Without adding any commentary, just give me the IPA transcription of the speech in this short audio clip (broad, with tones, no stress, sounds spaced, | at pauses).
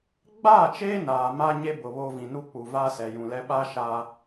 ɡ͡b aː˦˨ t͡ʃ eː˦ n aː˨ m a˦ ɲ e˦ b ʊ˨ β o˦ v ĩ˨ n u˦ k͡p u˨ v aː˦ s ɛ˨ j ũ˨ l ɛ˦ ɓ a˦ ʃ a˦